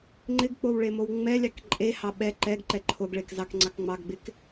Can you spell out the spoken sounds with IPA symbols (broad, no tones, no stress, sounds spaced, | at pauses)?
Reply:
ŋ͡ǃ ɪ ɡ k͡p o w ɭ e m o w ŋ͡m ɛ lʲ ɑ k ǃʼ e h ɑ ɓ ɛ ǃ ɛ ɡ ǃ ɛ ǃʰ o ɡ ɭ e k z ɑ k ŋ͡ǀ ɑ k ŋ͡m ɑ ɡ ɡ͡b ɪ k